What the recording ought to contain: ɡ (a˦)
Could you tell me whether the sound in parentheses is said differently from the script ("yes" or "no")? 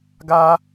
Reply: no